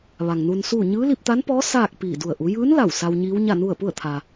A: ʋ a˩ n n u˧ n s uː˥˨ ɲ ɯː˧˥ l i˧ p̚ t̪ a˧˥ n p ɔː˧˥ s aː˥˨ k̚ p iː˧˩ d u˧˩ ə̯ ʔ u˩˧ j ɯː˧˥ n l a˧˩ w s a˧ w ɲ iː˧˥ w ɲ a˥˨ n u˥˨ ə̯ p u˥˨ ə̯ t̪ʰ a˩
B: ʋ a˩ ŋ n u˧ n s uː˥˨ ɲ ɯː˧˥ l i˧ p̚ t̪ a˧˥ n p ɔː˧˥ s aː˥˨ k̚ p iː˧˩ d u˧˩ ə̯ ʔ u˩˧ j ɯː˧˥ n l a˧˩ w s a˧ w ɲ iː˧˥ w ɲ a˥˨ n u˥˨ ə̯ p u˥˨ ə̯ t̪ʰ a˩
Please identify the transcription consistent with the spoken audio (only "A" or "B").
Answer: B